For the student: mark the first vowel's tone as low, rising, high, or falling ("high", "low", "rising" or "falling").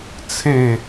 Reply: falling